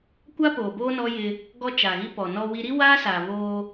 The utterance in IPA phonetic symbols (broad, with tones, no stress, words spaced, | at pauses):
kʷa˦poː˨boː˦nɔ˦ jɪ˦ | ɡɔ˦t͡ʃa˨ɣi˦ pɔ˨nɔ˦wi˦ ɾi˦waː˦saː˨ βoː˦